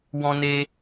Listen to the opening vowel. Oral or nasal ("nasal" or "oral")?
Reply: nasal